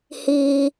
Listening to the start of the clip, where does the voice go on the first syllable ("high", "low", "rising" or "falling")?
low